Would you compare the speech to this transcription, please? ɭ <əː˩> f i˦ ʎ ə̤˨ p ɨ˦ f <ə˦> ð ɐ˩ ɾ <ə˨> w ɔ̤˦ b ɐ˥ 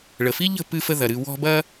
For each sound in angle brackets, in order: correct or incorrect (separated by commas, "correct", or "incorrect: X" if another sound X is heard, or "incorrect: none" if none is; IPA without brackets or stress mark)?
incorrect: ə˩, correct, incorrect: ɨ˨